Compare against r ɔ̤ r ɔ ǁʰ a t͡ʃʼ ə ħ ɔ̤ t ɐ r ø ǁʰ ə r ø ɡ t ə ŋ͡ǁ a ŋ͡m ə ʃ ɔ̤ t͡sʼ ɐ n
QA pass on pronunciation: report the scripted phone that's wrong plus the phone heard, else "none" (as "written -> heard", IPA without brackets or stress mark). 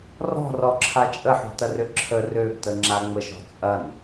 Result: none